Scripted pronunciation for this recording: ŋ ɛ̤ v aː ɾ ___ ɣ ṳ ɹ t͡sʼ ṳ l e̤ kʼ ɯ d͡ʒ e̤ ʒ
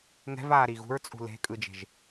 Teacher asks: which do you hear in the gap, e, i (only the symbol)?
i